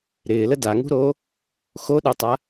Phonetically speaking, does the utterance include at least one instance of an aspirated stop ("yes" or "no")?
no